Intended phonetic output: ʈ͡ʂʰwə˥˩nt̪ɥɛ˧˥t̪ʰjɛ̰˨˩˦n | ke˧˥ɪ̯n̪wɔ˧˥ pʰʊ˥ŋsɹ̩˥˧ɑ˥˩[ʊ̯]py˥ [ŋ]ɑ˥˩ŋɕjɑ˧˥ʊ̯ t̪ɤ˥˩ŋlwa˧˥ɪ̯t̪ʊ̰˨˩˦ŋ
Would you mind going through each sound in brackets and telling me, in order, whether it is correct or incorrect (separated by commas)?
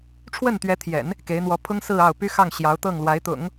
correct, incorrect